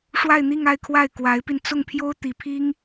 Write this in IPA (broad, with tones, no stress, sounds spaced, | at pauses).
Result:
ʂ w a˥˧ ɪ̯ n̪ i˥˧ ŋ a˥˧ ɪ̯ kʰ w a˥˩ ɪ̯ k w a˧˥ ɪ̯ p i˧ n t͡s ʊ˥˩ ŋ pʰ j o˥ ʊ̯ t̪ i˧˥ pʰ i˥ ŋ